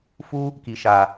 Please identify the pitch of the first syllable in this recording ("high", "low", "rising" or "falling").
high